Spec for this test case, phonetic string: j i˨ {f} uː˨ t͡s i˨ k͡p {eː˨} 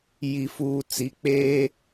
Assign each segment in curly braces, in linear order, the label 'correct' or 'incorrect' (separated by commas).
correct, incorrect